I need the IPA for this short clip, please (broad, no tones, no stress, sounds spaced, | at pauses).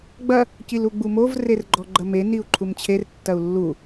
ɡ͡b ɐ | c i l u ɡ͡b u m o v r e r ɡ͡ǃ ɔ ɡ͡ǃ ɐ m e n i u̯ ǃʰ u m t͡ɕʰ e r tː ɐ u̯ lː u